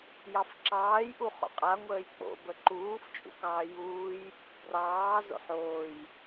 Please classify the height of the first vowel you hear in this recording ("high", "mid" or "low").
low